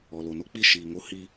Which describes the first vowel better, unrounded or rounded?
rounded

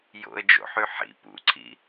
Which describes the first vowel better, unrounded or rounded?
rounded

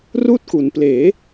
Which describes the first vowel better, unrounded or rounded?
rounded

